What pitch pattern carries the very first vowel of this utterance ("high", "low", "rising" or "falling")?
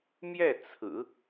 falling